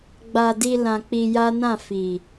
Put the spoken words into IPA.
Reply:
ɡ͡ba˧di˧ lã˧k͡pi˧ja˦nã˦˨ fi˨

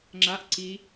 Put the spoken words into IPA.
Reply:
ŋ͡ǁaʔ ǀi

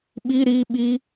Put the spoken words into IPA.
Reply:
ɓi ɾi ɓi

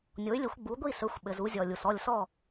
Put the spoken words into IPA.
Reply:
nʲo˩˥y̯lʲɘ˩˥xʷ ɡ͡bu˩˥ɡʷi˥˩ sɵ˩˥xʷɓɘ˩z u˧zʲɔ˩lʲu˩s ɔ˥˩lʲsɔ˥˩

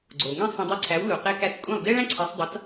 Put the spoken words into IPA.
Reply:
ɡ͡ǀo˩ ŋẽ˥sˤẽ˧ dˤy˧ǀʰæ˩˥wlu˩ qe˧kæ˧t͡skʷʼẽ˥˩lˠ de˥ɭæ̃˥ǀʰe˩˥sˤdˤɑ˩˥t͡s

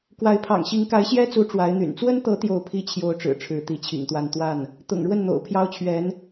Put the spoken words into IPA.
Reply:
kwa˧˥ɪ̯pʰɑ̰˨˩ŋɕi˧˥ŋ ka˧˥ɪ̯ɕjɛ˥t͡su˧˥ ʈ͡ʂwa˧˥ɪ̯n̪y̰˨˩n t͡swə˥nt̪ɤ˧˥ t̪jo˥˩ʊ̯pʰi˥t͡ɕʰjo˧˥ʊ̯ʈ͡ʂɻ̩˨˩ ʈ͡ʂʰɻ̩˧˥t̪i˧˥t͡ɕʰḭ˨˩ŋt̪wa˥˧n t̪wa˥˩n | t̪ʊ̰˨˩ŋɻwə˥˩n n̪o̰˨˩ʊ̯pʰjɑ˥ʊ̯t͡ɕʰɥɛ˧˥n

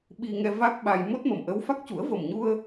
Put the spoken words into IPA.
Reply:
ɓi˧ŋɛ˧ va˦˥k̚ɓa˧j mo˦˥t̚mə˨˩mʔə˧˥wfa˦˥k̚ cu˨˩˦ə̯və˨˩mɲu˧ə̯

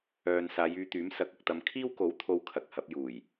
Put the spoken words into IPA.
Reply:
œː˨n saː˨˧jyː˧t̪yː˨˥m sɐ˨˥k̚ɐ˨k̚t̪ɐ˧m kʰiː˥wko˨˥wt̪ʰo˨˧w kʰɐ˨k̚ hɐ˨˥p̚juː˨˩j

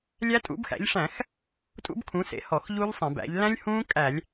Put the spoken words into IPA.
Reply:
lʲæ˦˥ tʼṵ˩˥bxæ̰˩˥ʎʂæ̃˧˩˧x | tʼṵ˦˥bkʰũ˩˥sḛ˩˥ hɔ˧˩˧xʎu˦˥ʎsˤẽ˧˩˧bæ̰˩˥ʎ læ̃˦˥lʲhũː˦˥ kʼæ˧˩˧lʲ

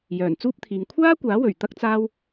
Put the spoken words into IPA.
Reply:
jœː˨˩nt͡suː˥p̚t̪ʰiː˨ŋ kʷʰaː˥kʷaː˨˥wɵ˨˩ɥ t̪ɐ˥k̚t͡saː˥w

